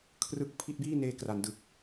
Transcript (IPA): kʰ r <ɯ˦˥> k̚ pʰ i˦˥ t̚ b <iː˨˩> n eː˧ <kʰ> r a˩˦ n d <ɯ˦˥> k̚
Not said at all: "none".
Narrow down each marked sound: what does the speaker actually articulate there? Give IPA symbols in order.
ɯ˦˥, iː˥˩, k, ɯ˨˩

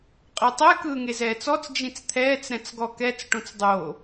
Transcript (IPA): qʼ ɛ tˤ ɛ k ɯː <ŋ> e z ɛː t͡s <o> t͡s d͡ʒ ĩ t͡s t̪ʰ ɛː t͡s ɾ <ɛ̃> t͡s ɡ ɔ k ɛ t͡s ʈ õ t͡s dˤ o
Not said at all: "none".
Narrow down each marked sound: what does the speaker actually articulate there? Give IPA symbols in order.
ŋ, ɔ, ɛ̃

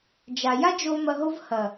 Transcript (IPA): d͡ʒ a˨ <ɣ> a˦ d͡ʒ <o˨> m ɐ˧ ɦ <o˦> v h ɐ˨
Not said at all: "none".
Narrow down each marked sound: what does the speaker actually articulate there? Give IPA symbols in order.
j, o˧, o˦

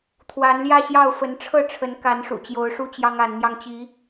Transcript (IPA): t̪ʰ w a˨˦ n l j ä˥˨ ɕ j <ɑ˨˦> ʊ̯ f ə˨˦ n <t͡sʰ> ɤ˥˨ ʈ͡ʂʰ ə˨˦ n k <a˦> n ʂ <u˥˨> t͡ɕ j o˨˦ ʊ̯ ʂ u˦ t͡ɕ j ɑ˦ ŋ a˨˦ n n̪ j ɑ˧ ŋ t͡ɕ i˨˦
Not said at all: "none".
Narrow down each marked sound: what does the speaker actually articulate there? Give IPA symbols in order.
ɑ˥˨, ʈ͡ʂʰ, a˨˦, ṵ˨˩

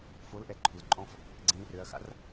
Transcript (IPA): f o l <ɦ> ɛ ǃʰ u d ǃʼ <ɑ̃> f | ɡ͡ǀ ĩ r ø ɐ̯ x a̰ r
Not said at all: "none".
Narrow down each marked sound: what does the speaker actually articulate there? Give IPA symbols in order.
ʔ, ɔ̃

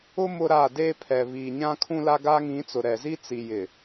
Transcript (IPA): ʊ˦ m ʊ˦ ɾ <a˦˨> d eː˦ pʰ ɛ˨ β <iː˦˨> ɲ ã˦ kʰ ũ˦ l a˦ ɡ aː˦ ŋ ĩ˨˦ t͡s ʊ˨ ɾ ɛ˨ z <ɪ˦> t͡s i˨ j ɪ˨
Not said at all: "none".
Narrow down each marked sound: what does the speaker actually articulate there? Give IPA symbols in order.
a˦˨, iː˨, i˦

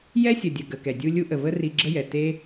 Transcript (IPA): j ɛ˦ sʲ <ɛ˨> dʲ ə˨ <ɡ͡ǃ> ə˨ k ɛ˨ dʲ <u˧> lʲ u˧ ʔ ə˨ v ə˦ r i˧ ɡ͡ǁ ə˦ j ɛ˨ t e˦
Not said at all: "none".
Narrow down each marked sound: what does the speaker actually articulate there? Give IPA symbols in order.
ə˨, ɡ, u˧

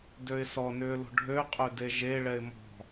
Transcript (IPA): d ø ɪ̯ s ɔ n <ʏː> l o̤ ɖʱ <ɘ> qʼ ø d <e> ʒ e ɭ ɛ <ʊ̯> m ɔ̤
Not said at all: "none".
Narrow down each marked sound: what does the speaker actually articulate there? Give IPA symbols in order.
ʏː, ø, e, ɪ̯

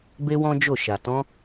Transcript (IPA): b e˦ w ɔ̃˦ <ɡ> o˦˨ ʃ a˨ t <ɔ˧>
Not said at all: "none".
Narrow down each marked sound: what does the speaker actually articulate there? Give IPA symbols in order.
d͡ʒ, ɔ̃˧

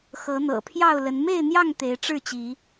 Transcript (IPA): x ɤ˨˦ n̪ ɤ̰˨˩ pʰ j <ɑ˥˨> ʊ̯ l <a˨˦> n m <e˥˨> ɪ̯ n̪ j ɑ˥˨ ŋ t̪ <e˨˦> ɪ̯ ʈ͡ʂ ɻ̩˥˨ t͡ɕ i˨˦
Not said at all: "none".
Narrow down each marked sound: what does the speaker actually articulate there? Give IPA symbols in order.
ɑ˥˨, ə˨˦, e˥˨, e˨˦

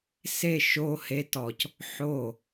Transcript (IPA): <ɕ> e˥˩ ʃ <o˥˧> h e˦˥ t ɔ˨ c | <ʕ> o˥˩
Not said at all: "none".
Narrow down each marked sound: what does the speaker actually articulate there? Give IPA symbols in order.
s, o˥˧, ħ

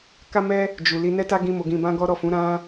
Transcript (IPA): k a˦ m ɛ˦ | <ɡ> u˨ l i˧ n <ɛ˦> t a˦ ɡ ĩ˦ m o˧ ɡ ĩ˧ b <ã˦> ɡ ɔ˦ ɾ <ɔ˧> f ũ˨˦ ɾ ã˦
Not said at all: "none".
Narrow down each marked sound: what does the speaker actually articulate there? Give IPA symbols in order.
d͡ʒ, ɛ˦, ã˦, ɔ˦˨

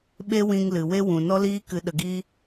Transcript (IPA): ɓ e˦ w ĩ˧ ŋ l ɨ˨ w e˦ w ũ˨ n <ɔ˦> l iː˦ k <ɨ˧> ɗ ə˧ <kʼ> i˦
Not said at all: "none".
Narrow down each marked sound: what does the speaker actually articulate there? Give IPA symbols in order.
ɔ˦, ɨ˧, ɡ

